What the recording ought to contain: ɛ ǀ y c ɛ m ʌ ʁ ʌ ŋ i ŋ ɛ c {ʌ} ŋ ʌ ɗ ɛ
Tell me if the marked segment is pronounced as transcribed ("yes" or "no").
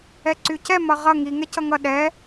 yes